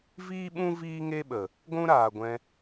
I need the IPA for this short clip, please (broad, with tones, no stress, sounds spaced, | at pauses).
v iː˦ ɓ ũ˦ v iː˦ ŋ e˦ ɓ ə˨ | ɡʷ ũ˦ ɾ aː˨ ɡʷ ɛ̃˧